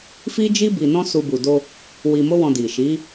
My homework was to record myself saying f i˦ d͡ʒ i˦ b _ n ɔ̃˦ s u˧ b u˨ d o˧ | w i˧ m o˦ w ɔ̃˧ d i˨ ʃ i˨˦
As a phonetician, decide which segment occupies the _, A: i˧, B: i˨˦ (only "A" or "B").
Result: A